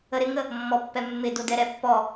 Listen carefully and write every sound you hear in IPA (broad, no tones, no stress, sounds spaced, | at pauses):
ə ɾ ɪ ŋ ə | mː ɔ pː ɛ mː ɪ d o d ɛ ɾ ɛ pː ɔ